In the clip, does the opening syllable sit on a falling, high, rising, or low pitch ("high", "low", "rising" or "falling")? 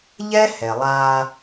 high